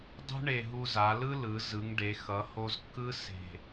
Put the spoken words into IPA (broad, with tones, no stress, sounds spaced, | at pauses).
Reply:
dˤ ṳ˥ ɳ e˧˩ ɦ u˧ z a˩˧ l ɯ˥ l ɯ˩˧ z ɯ˩˧ ŋ ɖ e˩˧ x ʌ˩˧ h o˧ z kː ɯ˥ s e̤˧˩